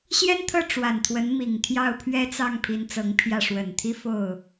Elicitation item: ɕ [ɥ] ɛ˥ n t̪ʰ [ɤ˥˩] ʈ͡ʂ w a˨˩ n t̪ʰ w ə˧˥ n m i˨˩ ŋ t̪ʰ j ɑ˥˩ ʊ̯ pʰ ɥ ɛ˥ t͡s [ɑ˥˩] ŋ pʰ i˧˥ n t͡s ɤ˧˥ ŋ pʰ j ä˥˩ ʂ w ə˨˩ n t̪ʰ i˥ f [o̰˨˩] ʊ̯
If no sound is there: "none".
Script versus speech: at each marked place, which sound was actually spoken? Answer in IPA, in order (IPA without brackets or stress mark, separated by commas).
j, ɤ˥˩, ɑ˥˩, o˥˩